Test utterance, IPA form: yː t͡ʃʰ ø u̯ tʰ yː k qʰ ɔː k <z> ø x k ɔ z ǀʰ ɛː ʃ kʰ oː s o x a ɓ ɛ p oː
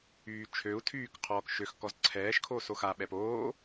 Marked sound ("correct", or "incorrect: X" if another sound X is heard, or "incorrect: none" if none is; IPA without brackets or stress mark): incorrect: ʃ